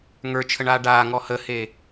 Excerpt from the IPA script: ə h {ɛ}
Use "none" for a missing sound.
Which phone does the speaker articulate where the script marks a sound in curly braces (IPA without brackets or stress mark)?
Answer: e